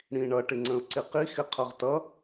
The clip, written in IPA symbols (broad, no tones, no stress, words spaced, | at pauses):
ɽĩɳʌ ʈɪŋ͡ǀə̃ʊ̯ǀɪqi xɪqʰʌʁtʌ